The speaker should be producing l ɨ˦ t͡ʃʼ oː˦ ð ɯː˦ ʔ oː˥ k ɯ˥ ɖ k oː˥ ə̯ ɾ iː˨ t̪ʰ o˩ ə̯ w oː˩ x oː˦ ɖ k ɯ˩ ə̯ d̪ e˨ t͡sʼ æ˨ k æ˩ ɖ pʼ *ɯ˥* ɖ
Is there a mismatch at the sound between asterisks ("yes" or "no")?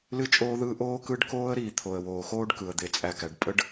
yes